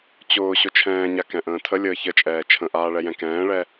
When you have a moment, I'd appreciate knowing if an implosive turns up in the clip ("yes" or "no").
no